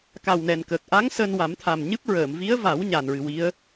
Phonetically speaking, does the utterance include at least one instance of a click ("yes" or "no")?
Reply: no